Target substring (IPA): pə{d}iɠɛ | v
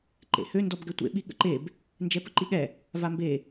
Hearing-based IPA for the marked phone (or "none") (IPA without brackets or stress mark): ǃ